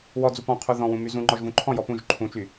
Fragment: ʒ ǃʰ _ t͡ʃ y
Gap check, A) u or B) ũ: B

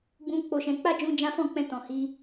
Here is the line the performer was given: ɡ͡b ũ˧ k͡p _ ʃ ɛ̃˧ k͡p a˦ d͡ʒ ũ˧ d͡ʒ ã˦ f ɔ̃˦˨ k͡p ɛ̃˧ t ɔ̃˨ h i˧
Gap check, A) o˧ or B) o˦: A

